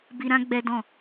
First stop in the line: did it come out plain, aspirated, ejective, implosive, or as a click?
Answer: plain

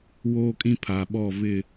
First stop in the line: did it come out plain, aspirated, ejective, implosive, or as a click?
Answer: ejective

